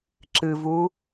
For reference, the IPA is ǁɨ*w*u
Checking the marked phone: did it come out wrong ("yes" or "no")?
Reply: yes